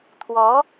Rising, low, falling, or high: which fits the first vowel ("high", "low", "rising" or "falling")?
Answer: rising